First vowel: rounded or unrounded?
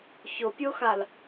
rounded